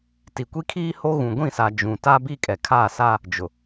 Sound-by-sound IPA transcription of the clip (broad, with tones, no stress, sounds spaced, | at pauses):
t i˨ kʷ i˦ kʰ iː˦ h o˦ ɣ ũ˨ ɡʷ ĩ˦˨ s a˨ d͡ʒ ũ˨ t a˦ b i˦ kʼ ɛ˨ kʰ aː˦˨ s aː˦ | d͡ʒ ʊ˨